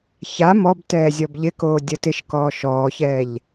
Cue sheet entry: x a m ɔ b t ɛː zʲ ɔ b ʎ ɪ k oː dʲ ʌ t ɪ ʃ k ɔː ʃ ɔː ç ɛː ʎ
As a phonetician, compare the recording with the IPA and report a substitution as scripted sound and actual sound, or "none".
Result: x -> ç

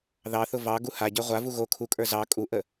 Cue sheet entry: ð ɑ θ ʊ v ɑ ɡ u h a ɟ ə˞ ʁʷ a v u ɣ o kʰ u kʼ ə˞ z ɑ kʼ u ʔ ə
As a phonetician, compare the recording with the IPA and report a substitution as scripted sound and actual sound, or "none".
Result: none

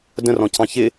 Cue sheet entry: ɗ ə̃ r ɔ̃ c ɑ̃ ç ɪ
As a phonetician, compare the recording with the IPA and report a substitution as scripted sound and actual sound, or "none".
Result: ɗ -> d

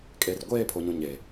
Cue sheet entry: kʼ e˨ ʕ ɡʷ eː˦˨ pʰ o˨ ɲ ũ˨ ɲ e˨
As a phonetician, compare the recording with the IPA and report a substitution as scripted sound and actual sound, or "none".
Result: ʕ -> r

